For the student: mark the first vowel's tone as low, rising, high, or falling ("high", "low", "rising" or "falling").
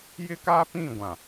high